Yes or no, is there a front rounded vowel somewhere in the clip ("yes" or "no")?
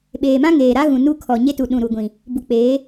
no